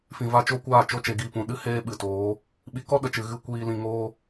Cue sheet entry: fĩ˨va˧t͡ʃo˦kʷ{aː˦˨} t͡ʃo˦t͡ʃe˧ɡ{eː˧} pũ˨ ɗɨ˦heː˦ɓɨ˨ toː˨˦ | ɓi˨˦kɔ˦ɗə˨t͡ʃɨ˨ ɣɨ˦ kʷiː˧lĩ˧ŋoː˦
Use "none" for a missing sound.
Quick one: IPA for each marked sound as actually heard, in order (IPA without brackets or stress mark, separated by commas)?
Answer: aː˦˨, iː˧